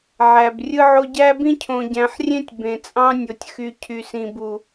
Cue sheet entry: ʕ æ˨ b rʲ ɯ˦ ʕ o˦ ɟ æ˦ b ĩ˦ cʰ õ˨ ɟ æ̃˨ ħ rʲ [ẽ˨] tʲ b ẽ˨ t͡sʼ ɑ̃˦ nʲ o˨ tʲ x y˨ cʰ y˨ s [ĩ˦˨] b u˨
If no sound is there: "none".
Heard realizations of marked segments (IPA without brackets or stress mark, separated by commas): ẽ˦, ĩ˨